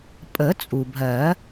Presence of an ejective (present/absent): present